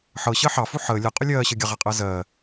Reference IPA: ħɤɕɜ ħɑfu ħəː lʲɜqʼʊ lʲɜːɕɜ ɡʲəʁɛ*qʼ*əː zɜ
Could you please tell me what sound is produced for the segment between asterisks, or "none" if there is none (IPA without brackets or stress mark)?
qʼ